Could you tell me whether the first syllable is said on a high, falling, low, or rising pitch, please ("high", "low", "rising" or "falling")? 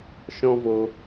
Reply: high